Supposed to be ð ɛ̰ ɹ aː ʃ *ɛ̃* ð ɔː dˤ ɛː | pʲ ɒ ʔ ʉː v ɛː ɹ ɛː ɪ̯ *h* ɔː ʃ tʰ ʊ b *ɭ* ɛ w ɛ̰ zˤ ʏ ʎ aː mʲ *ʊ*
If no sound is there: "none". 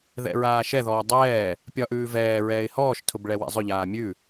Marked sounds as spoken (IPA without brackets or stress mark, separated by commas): ɛ, h, ɭ, ʉ